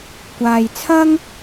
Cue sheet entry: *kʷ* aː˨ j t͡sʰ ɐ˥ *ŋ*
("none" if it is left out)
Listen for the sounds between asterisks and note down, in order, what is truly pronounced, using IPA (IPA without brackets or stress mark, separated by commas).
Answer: kʷ, ŋ